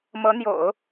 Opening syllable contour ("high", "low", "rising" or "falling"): rising